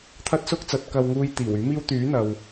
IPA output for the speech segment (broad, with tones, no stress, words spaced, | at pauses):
t̪ʰɐ˥t̚sʊ˥k̚t͡sɐ˨˥t̚ kɐ˧wŋuː˧j t̪iː˨˩wyː˨˥ miː˥w t̪yː˨˥n̪ɐ˨w